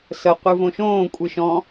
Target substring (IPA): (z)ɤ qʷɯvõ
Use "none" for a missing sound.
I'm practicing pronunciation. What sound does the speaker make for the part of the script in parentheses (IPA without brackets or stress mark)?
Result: s